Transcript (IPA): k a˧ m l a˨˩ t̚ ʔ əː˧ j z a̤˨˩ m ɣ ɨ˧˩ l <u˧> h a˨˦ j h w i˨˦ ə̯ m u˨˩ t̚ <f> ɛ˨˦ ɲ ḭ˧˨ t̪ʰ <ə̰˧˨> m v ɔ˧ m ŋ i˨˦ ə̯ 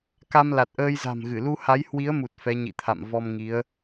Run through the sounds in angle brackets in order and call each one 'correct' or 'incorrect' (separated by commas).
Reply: correct, correct, incorrect